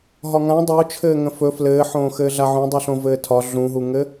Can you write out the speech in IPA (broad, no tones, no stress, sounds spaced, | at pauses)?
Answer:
ɦ ɒ ŋ ã dˤ o t͡ʃʰ ɘː ŋ ə̃ f ɵ f l ɘː ħ õː x ɘː ɮ a ʕ ũ dˤ u ɬ õ v ɘː tʰ ɒ ɮ ũ ɦ u ŋ ɘ